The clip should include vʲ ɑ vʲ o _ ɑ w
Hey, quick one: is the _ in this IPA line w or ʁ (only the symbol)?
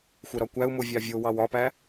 w